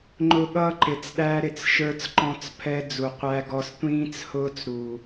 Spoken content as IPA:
ŋ͡ǃʊ˦ɠʌː˦ǃɪ˨t͡sɗæ˦ ɾɪ˨t͡sʃə˞˦t͡sǃɔ̃˦t͡s pʰɛ˦ d͡zu˨qʷæ˦ɡɔ˦s tʷĩː˦t͡shʊː˦t͡s ɾu˨

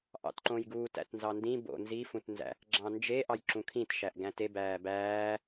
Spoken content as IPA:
ʔɑ̰tǃõjɡuːt æ̰tnzɑndĩ bo̰ nzi fũtnzæ̰ | ɡ͡ǁɑ̃nd͡ʒe ʔɑjǁũkʰĩt ʃæʔɡæ̃te bæːbæː

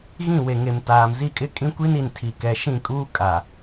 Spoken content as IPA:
ɣĩ˦˨we˨ŋe˨m taː˨mzi˦˨kʼɪ˦kʼĩ˦ kʷi˦ni˨ntʰi˨ kɛ˨ ʃĩ˦˨kʼuː˦ kʼa˨

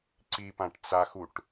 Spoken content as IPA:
ǀipãʈt͡saxuʈ

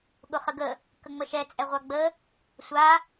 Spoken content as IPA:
ɠʊχəɡə | kəŋ͡məʃɛ t͡sʼɛʁʷaɡ͡bə | sʷa

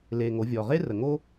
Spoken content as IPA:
le˩ ŋo˩˧vʲɔ˩ʁe˥ rə˩ŋo˥

